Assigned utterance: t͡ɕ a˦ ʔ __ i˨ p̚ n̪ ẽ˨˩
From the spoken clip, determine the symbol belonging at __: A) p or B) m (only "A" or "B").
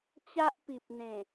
A